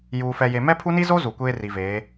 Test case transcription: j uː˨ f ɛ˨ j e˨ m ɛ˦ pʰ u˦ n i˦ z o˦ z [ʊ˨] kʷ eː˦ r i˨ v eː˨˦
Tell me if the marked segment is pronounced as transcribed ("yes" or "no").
no